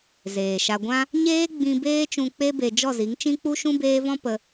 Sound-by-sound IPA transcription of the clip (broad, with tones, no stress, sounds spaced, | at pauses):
z eː˨ ʃ a˧ ɡʷ ã˦ | ɲ eː˦ ɡ͡b ĩ˧ b eː˦ t͡ʃ ũ˧ k͡p e˦ b e˧ d͡ʒ ɔ˦˨ z i˨˦ ŋ t͡ʃ ĩ˦ k͡p u˦ ʃ ũ˦ b eː˦ v ɔ̃˦ p ə˧